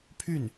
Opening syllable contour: falling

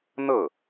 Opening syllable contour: falling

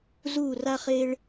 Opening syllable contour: falling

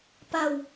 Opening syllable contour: falling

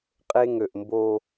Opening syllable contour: high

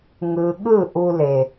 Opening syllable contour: low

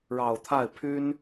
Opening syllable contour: low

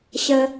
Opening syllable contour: high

